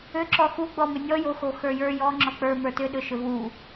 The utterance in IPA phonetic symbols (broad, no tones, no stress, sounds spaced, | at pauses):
ʏ ǁ ɔ x u ɡ͡b ɔ m ʏ nʲ ɔ j o x o x ə˞ j ə˞ j ɔ ŋ͡ǁ ɔ k͡p ə˞ m ə˞ t ʏ ɗ ʏ ʃ ʏ v u